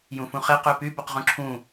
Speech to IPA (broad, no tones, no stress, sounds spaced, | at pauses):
j ũ f ũ χ e q ø p y b o q ʁ ũ ǁʰ ũ